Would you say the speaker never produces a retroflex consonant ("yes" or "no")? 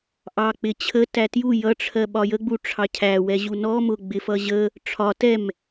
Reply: no